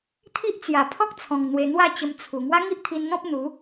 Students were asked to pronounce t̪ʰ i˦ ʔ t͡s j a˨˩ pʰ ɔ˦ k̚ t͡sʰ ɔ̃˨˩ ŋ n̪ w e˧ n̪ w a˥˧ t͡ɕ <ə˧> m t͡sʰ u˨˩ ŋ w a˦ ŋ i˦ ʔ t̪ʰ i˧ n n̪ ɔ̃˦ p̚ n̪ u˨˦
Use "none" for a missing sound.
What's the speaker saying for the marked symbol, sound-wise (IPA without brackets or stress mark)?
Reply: ə˧